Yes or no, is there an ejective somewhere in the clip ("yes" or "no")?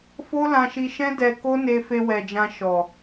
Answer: no